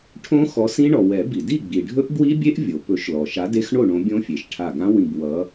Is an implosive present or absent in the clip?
absent